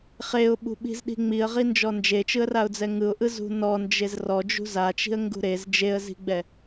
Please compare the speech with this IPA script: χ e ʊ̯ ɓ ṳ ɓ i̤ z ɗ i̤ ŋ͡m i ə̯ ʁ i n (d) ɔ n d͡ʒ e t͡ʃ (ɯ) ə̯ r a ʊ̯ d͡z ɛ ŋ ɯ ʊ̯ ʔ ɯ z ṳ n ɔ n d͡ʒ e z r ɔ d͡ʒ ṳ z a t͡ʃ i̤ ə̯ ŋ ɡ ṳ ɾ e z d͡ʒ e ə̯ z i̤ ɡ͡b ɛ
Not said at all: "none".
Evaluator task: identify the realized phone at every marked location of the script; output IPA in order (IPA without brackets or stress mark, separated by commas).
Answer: d͡ʒ, ɯ